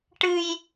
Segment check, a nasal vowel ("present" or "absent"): absent